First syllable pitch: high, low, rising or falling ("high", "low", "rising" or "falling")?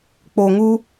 low